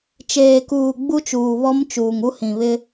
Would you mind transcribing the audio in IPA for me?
t͡ʃ eː˨ k uː˨ ɡ͡b u˦ t͡ʃ uː˨ β ɔ˦ m t͡ʃ uː˨ ŋ u˦ h ĩ˨ β ɪ˦

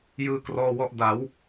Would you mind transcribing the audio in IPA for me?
j ɯː˧ k r ɔː˧ w ɔ˦˥ ʔ d a˩˦ w

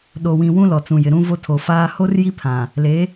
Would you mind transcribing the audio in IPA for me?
ɗ o˨ w ĩ˨ w ũ˦ l ɔ˨ t͡s ũ˨ j ɪ˨ ɾ ũ˦ v o˦ tʰ o˨ f aː˦ h o˦ r j i˦ pʰ ã˨ | l e˨˦

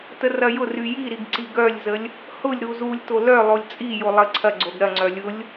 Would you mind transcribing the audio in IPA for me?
t ə r ɐ j ʊ r y j i ɾ i ɡ ǀ i ɡ œ lʲ z ə lʲ | h ʊ lʲ ɾ u z u lʲ t o l œ lˠ o lʲ t͡sʼ i j o lˠ ə ǀʰ ɐ ɡ͡ǀ o ɡ ɾ ɐ ŋ͡ǀ œ lʲ ʊ lʲ

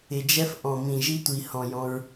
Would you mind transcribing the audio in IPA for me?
ɪ˨ d͡ʒ ɛ˦ f ʔ ɔ̃˨ m ĩ˨ ʒ i˦ tʷ i˨ h ɔ̃˨ j ɔ̃˦ ɹ

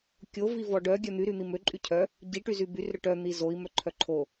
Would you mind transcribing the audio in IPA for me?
kʲ o v i v ɔ ɖ œ ɡʲ œ n̪ y ɾ y n̪ i m ø ǃʼ y cʰ œ | ɟ i ʈ y z y b y r ɾ ø ʈ œ n̪ i z o i̯ m œ ǃʰ œ ǃʰ o

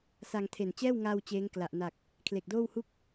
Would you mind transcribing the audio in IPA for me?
s a˧ ŋ tʰ e˨˩ n t͡ɕ ɛː˥˩ w ŋ aː˧ w t͡ɕ eː˦˥ ŋ k l a˨˩ ʔ n a˨˩ k̚ | kʰ l e˨˩ k̚ d oː˥˩ w h u˥˩ k̚

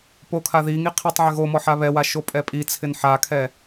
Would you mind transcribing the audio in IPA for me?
p o kʰ a ð i ŋ i qʰ i tˤ ʕ ɪ ɣ o m ɔ ħ a β ɛ w a ʃ o pʼ ɛ pʼ i t͡sʰ ɪ n ħ a kʰ ɛ

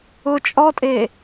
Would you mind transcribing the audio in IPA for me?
ʊ t͡ʃʼ ɔ tʼ e

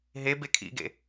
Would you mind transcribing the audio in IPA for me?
ɦ e b e kʰ ḭ ɡ ḛ

